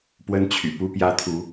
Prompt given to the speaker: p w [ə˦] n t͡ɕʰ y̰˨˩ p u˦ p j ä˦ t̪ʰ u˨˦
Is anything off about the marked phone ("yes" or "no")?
no